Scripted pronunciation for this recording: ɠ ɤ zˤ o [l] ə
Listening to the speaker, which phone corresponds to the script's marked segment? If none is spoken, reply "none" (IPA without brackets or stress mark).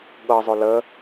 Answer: l